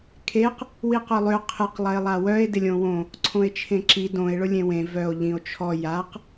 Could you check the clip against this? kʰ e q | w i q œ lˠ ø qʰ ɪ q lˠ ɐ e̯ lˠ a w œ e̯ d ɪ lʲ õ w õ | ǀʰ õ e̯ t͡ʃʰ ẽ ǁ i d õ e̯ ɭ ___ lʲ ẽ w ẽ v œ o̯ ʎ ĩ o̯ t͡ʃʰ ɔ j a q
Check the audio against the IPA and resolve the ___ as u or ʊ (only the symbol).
ʊ